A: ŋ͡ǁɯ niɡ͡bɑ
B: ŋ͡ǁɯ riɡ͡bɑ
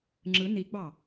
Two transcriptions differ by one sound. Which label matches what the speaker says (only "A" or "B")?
A